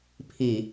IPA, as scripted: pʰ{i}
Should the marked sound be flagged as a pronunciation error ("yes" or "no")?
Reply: no